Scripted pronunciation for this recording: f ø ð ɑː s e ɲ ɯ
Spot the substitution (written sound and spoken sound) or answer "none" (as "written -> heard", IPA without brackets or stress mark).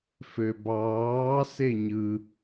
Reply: ð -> b